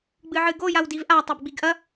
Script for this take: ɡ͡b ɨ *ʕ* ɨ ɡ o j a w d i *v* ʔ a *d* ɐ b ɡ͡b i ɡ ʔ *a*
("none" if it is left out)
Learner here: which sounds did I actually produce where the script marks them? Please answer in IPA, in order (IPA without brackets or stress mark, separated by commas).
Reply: ʕ, v, tˤ, ɐ